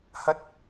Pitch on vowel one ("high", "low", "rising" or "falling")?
high